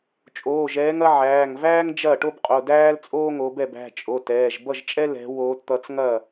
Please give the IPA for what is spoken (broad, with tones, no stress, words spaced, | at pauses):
t͡ʃʼoː˩˧˩ʒɛː˨˦ŋɐ˨˦ ʕæː˩˧˩ŋvæː˥ŋ d͡ʒɐ˥˩ʈo˥bqʼo˩˧˩dæː˥l t͡sʼoː˥ŋo˨˦bɛ˥˩b æ̤˩˧˩t͡ʃʼo˩˧˩ tɛː˩˧˩ʒ bʌ˥˩ʒt͡ʃʼɛ˥ lɛ̤˨˦ woː˨˦tt̪ʌ˨˦t͡sŋɐ˥˩